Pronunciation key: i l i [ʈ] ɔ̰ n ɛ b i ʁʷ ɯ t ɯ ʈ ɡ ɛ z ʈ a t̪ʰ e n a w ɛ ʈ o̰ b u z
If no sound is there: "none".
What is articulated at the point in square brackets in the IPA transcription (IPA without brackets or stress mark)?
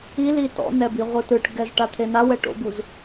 t